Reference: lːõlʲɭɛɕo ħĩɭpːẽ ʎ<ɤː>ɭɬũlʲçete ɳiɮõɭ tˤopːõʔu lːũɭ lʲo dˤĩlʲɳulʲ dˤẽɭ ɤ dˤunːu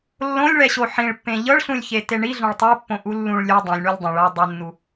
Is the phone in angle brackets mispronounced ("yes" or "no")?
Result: yes